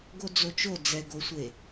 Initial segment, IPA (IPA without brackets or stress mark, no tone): ɡ